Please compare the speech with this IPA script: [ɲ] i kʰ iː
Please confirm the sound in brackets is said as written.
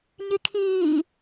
yes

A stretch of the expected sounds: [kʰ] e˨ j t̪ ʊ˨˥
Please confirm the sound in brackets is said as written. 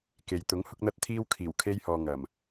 no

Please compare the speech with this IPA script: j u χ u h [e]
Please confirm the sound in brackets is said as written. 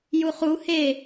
yes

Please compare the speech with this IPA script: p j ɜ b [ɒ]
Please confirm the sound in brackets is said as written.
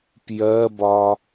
yes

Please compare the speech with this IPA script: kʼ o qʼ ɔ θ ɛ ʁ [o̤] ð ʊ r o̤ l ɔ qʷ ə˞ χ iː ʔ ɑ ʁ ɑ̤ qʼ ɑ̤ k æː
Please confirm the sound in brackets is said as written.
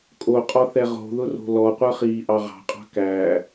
yes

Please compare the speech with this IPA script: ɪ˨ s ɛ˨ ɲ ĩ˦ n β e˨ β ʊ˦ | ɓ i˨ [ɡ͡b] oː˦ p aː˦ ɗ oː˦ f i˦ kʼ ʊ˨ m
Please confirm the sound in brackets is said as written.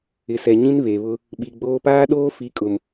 yes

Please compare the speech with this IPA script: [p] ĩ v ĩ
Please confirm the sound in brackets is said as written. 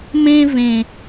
no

